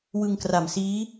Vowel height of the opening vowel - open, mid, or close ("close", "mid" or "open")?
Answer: close